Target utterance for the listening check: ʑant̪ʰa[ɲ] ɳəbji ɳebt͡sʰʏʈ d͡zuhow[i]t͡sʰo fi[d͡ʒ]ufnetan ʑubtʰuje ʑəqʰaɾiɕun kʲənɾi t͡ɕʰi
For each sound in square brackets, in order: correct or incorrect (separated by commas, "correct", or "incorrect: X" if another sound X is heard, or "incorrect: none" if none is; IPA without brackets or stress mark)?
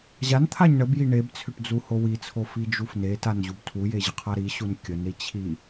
correct, correct, correct